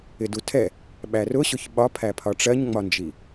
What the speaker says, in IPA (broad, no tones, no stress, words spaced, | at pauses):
ɪdutʰɛ | ɓærʊɕʊç ɓɒpʰæpʰɒ ʈ͡ʂɜɲŋ͡mɒnd͡ʒi